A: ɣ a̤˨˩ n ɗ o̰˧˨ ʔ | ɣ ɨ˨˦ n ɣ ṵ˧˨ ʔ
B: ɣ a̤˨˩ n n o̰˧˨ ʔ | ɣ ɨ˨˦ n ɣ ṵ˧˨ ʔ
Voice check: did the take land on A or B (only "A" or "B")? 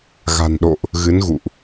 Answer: A